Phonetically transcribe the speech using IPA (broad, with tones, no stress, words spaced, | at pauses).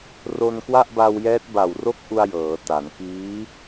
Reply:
ro˧nkwa˥˩ʔba˧wjɛː˦˥t̚ ba˨˩wro˥˩k̚ʔu˧a̯ jɤː˩˦ta˩˦n kiː˦˥